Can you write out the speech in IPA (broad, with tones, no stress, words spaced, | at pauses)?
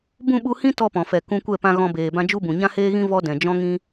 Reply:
bũ˦˨ɓu˧hĩ˦ tɔ˦pɔ̃˨fɛ˨ kũ˧kʷɛ˦˨pã˧ ɣɔ̃˧beː˨bã˦ d͡ʒu˦bũ˨ ɲã˦heː˦ɣĩ˦ vɔ˦dɛ̃˨ d͡ʒɔ̃˦ŋĩ˦